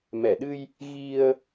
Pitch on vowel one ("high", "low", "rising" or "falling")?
low